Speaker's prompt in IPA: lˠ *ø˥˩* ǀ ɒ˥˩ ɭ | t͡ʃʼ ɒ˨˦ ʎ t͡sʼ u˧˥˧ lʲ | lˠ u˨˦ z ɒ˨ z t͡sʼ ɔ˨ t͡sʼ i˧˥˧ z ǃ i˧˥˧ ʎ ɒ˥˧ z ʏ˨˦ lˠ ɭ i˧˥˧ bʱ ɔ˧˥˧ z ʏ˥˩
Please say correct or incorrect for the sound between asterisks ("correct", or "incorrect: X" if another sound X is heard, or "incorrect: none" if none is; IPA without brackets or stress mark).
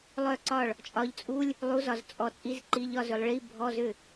incorrect: œ˥˩